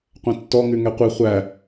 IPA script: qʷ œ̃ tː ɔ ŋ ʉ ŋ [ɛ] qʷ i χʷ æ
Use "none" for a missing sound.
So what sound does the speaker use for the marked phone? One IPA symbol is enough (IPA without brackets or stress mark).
ɛ